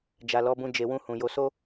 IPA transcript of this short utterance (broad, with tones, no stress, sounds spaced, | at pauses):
d͡ʒ a˨ l ɔ˨˦ b ũ˧ d͡ʒ e˨ w ũ˧ h ũ˨ j o˧ s o˦